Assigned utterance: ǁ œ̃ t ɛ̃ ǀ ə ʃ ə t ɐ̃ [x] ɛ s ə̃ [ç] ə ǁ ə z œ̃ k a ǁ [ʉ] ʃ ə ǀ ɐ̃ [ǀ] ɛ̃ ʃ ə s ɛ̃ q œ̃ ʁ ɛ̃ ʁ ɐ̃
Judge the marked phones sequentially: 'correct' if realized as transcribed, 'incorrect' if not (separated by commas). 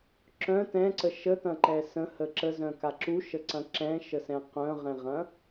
incorrect, incorrect, incorrect, incorrect